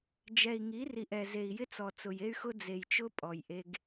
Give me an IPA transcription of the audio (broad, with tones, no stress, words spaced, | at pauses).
d͡ʒɛ˨i̯ŋi˨˦ri˨ʔ ɛ˨ze˨i̯jɪ˦t͡sɔ˨ t͡sʊ˨je˦y̯xʊ˦ d͡ze˨jt͡ʃʊ˦ pʼɔ˨jʔe˦ɡ